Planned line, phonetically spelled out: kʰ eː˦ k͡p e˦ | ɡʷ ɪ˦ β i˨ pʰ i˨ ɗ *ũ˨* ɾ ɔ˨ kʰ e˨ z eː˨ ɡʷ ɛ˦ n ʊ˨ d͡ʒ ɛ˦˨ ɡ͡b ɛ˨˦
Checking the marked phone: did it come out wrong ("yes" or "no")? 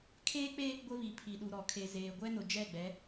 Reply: yes